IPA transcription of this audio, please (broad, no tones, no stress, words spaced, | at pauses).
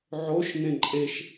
ʕoʃ nẽǃʼeʃ